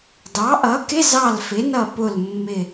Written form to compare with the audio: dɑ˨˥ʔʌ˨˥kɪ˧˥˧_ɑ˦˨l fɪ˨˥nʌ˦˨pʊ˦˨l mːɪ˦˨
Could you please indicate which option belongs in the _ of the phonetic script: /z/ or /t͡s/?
z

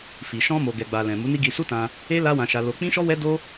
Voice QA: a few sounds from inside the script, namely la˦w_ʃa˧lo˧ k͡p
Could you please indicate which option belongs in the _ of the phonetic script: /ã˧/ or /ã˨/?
ã˧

